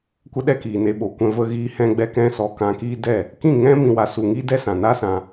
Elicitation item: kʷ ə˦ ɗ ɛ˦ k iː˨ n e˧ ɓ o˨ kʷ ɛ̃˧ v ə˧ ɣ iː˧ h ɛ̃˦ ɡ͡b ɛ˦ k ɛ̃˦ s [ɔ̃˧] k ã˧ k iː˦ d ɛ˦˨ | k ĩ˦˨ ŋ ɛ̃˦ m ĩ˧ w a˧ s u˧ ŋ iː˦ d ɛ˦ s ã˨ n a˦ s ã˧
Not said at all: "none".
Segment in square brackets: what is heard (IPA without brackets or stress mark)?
ɔ˧